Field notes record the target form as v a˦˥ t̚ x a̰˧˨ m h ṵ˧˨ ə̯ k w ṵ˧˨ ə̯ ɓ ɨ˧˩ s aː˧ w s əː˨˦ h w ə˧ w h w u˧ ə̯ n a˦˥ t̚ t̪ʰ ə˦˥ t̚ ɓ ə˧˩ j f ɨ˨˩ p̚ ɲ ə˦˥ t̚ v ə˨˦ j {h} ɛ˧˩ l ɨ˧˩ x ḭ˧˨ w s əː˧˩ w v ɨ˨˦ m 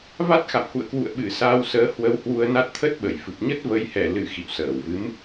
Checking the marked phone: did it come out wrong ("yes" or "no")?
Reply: no